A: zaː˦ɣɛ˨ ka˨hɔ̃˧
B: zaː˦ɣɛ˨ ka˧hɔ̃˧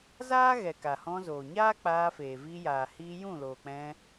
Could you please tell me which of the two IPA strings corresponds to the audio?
A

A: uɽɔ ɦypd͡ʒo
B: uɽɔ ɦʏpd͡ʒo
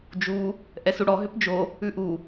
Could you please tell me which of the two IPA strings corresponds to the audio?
B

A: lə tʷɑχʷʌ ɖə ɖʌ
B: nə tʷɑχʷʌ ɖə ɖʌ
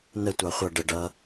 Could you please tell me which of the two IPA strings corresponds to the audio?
B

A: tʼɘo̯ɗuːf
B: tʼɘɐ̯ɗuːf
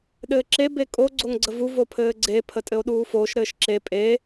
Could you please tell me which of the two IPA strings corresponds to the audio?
A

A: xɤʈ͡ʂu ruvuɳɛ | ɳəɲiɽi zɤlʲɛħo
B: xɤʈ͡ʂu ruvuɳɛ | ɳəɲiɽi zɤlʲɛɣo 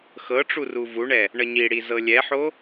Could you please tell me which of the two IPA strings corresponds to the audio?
A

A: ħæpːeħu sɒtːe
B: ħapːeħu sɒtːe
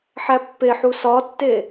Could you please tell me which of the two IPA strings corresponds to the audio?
A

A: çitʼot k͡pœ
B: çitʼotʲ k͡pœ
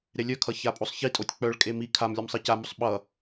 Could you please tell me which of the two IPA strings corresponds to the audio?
B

